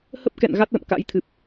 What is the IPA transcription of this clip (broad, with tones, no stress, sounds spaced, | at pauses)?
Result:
h ə˦˥ p̚ k ɛ̰˧˨ n ɣ a˦˥ t̚ l ə̰˧˨ m k a̰˧˥ j t̪ʰ ɨ˨˩ p̚